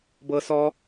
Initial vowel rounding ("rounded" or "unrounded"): unrounded